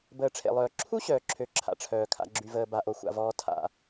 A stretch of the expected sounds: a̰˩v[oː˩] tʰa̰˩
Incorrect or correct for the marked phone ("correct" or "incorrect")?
incorrect